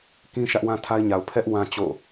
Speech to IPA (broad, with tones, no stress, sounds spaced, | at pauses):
k ĩ˦ ʃ ä˦ ʔ w ã˦ tʰ a˦ ɪ̯ ɲ a˨ ʊ̯ pʰ ɛ˦ ʔ w ã˦ t͡ɕ o̰˦˨